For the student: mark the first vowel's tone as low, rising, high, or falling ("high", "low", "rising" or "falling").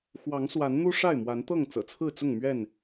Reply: rising